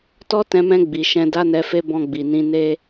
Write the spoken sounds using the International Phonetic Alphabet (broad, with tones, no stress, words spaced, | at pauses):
tɔ˦tɛ̃˧mɛ̃˧ ɡ͡bi˨ʃɛ̃˧ da˦nɛ˧fe˦ bɔ̃˧ɡ͡bi˨nĩ˧ ne˧